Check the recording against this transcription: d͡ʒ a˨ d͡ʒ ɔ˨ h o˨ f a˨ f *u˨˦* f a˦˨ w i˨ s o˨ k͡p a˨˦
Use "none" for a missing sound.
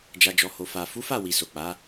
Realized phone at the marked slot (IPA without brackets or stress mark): u˨˦